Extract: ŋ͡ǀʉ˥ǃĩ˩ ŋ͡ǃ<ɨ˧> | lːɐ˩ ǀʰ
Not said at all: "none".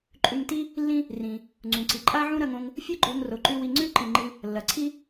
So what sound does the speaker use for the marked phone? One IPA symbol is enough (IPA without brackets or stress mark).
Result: ɨ˧